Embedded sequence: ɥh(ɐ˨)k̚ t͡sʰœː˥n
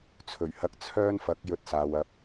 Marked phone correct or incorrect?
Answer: incorrect